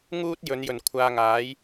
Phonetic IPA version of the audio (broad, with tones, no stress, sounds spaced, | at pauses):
ŋ uː˥ t̚ j ɵ˨˧ n j ɵ˨˩ n kʷʰ aː˧ ŋ aː˨˥ j